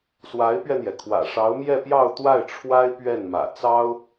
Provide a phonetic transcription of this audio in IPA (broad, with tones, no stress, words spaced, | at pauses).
swa˧˥ɪ̯pɥɛ˧n̪jɛ˩kʰwä̰˨˩ ʂɑ˧˥ʊ̯mjɛ˥˧pjɑ˥˧ʊ̯ t̪wa˥˩ɪ̯ʈ͡ʂʰwa˥ɪ̯ pɥɛ˥˩nmä̰˨˩ t͡sɑ˥ʊ̯